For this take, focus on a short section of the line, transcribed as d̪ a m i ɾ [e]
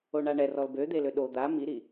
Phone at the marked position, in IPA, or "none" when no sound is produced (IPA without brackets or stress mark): i